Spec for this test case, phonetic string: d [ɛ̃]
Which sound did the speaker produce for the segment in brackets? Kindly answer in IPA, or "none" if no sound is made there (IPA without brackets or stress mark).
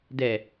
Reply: ɛ